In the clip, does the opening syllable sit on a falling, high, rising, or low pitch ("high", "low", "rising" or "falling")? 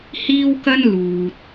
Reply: high